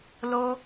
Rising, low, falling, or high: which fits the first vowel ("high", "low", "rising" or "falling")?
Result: high